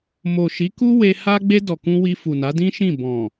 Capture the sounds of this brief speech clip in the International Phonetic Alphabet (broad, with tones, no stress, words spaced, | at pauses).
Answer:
mo˨ʃi˨˦ku˦ we˧ ha˧ɡ͡be˧ dɔ˨kũ˧ wi˧fu˨na˨˦dĩ˦ ʃĩ˦˨ bɔ̃˨